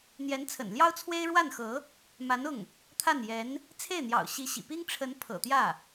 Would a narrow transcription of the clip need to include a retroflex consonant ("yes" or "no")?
yes